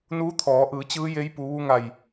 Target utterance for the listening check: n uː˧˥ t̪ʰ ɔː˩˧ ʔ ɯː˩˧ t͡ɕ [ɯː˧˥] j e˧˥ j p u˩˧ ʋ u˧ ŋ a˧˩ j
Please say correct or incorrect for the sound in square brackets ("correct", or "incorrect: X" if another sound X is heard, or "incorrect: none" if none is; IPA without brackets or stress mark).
correct